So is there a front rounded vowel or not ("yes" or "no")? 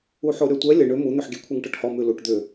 yes